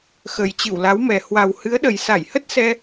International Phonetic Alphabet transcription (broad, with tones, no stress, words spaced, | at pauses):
xə˨˩jt͡ɕɨ˧˩wla˨˦wmɛ˨˩ hwa˨˩whɨ˨˦ə̯ɗə˨˩j sa˧˩jhə˦˥t̚sɛ˧